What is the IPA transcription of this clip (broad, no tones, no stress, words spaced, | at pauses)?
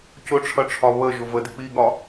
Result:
cʊʈ͡ʂʰʌʈ͡ʂʰɒ βəʒʊ vədɪ k͡piɠɒ